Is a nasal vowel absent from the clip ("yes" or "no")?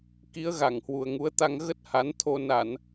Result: yes